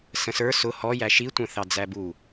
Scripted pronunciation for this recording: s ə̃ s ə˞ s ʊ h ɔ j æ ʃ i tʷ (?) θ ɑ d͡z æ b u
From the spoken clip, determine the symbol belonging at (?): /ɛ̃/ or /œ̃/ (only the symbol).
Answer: ɛ̃